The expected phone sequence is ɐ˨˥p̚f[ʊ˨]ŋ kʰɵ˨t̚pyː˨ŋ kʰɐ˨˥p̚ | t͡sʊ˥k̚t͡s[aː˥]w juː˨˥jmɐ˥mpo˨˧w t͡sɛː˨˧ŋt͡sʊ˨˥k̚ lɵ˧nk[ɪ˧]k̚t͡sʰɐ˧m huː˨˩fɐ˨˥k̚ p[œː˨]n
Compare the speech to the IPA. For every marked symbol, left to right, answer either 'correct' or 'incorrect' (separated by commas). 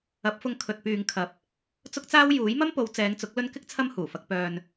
incorrect, correct, incorrect, incorrect